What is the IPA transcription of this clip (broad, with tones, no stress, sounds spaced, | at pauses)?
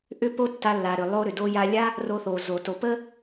ʔ ʏ˥ p o˥ tː a˧ lː a˩ ɾ ʏ˩ lˠ o˧ ɾ ʏ˩ d o˧ j a˧ lʲ a˥ | r o˧ θ o˩ z o˩ t o˩ p ə˥